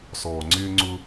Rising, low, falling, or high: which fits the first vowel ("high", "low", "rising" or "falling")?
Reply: low